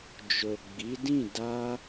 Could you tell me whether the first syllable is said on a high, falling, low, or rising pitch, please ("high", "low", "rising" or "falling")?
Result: low